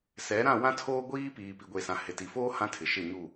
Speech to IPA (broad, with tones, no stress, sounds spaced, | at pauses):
s ɛ˨˦ ɾ ã˦˨ w ã˦ tʰ oː˦ ɡʷ iː˦ p iː˨ p i˨ ɡʷ e˨ s ã˨ h ɪ˨ t i˨ f oː˦ h ã˦ tʰ ɪ˨ ʃ ɪ˦˨ ɲ u˦˨